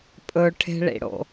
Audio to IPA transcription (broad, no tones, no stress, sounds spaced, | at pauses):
pʼ ɵ ʈʰ e̤ ɭ ḭ ɽ o̰